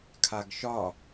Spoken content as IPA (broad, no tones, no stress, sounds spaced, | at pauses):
kʰ a ɡ ʃ ɒ